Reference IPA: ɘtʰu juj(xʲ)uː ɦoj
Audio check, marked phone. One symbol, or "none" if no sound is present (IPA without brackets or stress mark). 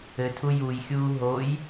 xʲ